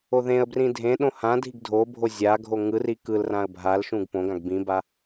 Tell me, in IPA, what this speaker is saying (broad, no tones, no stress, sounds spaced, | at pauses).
o ð ẽ ə̯ b r ĩ dʱ ẽ ɗ õ h ã dʱ i ɡ dʱ o bʱ o zʲ a ɡʱ o ŋ ɯ r i k ɯ l r ã ə̯ bʱ a l ʃ ũ ɡ p õ ɡ ã ɡ b ĩ b a